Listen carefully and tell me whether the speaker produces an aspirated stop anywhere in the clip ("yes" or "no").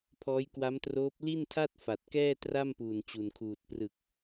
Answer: yes